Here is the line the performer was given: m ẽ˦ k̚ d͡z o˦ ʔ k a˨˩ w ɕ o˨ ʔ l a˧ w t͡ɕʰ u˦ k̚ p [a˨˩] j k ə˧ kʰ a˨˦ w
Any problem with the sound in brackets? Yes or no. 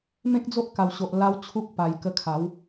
no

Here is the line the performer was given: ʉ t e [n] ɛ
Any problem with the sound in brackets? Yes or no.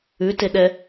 yes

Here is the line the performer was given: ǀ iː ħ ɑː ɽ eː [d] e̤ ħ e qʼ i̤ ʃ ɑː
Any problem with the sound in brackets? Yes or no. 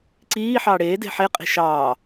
no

